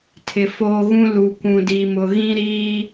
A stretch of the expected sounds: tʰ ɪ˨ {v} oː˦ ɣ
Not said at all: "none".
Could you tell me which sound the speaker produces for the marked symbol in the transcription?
f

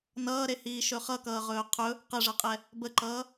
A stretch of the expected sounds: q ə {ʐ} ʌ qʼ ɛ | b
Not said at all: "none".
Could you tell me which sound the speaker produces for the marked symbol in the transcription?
ʐ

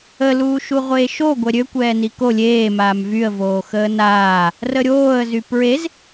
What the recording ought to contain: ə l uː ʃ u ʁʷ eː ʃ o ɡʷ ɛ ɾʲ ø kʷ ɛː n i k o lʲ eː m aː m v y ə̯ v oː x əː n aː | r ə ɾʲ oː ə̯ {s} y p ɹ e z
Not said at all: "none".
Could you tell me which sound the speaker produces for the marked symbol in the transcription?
z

